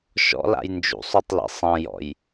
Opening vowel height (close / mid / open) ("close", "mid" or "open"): mid